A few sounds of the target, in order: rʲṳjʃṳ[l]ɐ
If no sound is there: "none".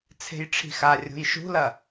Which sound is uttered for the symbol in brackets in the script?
l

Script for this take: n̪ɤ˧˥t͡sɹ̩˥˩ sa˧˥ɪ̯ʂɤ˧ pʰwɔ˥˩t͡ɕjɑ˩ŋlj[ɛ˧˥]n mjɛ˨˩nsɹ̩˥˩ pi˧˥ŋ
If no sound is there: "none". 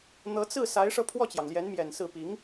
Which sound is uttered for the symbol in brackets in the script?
ɛ˧˥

